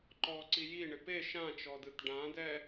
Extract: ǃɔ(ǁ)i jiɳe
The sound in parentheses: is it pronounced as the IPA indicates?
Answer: no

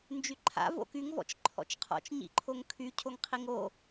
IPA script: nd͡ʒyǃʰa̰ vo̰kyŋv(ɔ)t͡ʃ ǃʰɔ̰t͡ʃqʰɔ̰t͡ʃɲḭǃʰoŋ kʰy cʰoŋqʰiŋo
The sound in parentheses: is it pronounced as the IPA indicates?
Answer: no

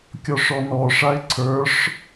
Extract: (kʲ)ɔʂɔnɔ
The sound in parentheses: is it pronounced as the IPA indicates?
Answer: yes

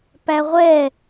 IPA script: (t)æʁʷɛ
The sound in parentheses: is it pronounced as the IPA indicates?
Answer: no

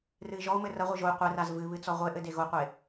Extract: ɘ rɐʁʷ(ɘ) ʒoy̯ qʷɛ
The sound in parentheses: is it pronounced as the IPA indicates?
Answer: no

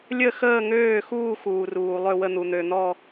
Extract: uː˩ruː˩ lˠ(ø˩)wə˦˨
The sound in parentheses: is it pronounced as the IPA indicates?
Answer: no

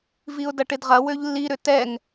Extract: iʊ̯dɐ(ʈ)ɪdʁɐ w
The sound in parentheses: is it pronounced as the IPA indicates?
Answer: yes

